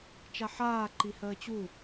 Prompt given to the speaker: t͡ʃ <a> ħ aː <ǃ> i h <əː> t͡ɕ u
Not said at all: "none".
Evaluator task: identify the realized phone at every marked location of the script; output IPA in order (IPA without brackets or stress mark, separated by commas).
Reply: a, ǃ, əː